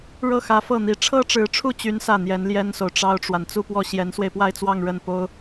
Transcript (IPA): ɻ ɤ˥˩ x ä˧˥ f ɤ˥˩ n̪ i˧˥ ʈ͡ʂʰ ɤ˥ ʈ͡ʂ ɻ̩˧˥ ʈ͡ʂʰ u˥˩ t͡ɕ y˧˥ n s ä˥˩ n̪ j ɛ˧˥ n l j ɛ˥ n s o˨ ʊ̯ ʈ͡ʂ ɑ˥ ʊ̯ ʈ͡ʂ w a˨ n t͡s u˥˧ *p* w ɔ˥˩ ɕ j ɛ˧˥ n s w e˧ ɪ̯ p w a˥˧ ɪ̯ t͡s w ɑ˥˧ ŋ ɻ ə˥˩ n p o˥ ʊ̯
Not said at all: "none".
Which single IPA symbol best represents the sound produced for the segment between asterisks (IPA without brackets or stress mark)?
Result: p